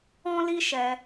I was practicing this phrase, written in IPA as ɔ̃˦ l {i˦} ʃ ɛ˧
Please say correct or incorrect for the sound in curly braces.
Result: correct